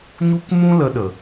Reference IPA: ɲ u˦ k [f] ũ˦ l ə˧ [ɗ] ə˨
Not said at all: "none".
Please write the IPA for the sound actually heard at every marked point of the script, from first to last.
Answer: m, ɗ

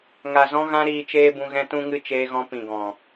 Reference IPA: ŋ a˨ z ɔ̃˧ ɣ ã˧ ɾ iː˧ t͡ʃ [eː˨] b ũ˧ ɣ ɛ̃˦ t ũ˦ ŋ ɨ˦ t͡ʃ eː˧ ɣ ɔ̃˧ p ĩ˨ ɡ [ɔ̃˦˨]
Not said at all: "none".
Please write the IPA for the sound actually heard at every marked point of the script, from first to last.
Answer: eː˦, ɔ̃˨

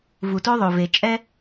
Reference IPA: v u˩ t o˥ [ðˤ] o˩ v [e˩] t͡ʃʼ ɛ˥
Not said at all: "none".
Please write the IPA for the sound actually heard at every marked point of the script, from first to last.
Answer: ðˤ, e˩

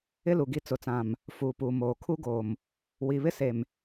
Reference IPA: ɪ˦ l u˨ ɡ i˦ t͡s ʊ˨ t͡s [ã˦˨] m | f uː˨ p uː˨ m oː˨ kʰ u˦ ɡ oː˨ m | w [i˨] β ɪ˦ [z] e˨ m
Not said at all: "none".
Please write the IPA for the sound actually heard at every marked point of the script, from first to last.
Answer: ã˨, i˨, s

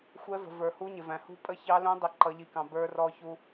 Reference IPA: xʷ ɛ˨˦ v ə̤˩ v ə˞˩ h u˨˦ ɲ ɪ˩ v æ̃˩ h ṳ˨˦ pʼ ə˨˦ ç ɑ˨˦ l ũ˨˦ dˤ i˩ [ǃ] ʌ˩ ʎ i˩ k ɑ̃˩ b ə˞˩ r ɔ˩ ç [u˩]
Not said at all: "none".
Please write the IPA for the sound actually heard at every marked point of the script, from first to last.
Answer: ǃ, u˩

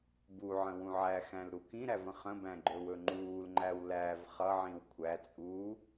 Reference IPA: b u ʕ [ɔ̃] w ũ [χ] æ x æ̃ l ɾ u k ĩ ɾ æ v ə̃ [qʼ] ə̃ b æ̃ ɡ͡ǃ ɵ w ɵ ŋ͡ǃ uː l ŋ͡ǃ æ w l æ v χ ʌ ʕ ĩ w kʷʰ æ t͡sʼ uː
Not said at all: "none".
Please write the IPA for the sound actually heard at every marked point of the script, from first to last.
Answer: ə̃, ʕ, χ

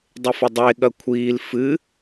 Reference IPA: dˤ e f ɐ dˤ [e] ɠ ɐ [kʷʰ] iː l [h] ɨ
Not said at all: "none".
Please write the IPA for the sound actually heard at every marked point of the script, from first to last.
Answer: e, kʷʰ, f

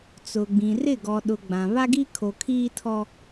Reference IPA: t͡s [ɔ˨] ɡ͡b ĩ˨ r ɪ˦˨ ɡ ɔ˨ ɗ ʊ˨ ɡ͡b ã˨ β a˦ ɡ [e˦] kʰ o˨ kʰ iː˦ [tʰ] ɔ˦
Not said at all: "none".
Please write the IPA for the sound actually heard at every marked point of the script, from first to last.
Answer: ʊ˨, i˦, tʰ

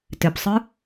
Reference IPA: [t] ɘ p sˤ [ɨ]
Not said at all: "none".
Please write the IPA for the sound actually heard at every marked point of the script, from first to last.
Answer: t, ɨ

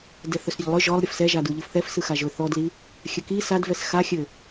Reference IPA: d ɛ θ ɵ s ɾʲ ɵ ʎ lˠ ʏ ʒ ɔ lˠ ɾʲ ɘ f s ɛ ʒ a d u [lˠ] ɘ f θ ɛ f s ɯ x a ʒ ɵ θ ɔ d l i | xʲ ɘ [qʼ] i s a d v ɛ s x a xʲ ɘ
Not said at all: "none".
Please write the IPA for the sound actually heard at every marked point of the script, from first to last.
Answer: ʎ, k

